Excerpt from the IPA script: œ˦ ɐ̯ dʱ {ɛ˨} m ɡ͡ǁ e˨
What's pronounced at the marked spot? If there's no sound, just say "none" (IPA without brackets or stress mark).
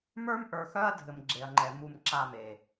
ɘ˨